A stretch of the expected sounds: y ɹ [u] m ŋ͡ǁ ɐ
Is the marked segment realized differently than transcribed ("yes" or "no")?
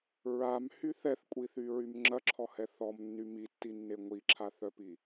yes